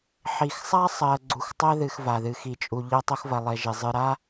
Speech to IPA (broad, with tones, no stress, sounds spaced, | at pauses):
ħ i˨ x sˤ a˥ sˤ ɜ˨ ɡ͡ǀ u˨ x tˤ ɜ˥ ð ɨ˨ x v a˩ ð ɨ˨ x i˨ t͡ʃʼ u˨ ʎ ɜ˥ tˤ o˦ x v ɐ˨ lˠ e˨ ʒ e˩ zˤ ɨ˨ ɾ a˥